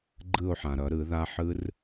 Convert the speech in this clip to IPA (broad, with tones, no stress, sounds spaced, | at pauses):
ɡ͡ǃ ɯ˥˨ o̯ ħ ã˩ ɾ ʌ˨˩˦ ɾ ɯ˨˩˦ ð a˦˥ ħ ɯ˦˥ r